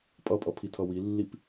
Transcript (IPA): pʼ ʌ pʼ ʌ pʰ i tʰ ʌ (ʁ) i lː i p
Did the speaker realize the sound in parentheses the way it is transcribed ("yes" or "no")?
no